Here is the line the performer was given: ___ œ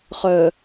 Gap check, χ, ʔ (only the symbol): χ